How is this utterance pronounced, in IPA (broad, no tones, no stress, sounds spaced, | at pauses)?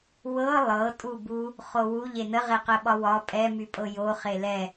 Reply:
w ɤ lˠ ɤ tʼ u b u | χ o w u ʎ e n ə ʁ e q ə ɓ ɒ w ɒ pʼ ɛ m y pʼ ɤ j o χ e l ɛ